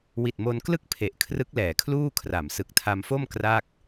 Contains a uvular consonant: no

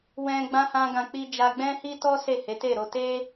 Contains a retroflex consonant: no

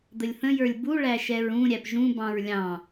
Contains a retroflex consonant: yes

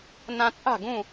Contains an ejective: yes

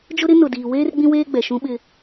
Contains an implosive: yes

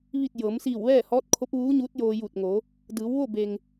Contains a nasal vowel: no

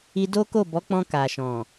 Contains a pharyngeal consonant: no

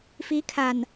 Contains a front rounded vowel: no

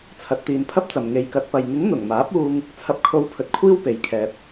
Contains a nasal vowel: no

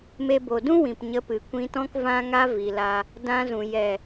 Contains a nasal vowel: yes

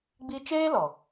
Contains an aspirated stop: no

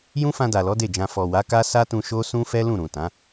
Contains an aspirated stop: no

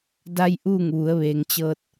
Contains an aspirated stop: no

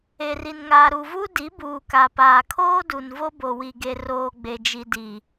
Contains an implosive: no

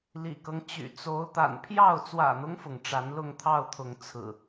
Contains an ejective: no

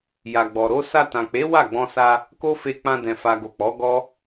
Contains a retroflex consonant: no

